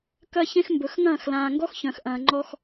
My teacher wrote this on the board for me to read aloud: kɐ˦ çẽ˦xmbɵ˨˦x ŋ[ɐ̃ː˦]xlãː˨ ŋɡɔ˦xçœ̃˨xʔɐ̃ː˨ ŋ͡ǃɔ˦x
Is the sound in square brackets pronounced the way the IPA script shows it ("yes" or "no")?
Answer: no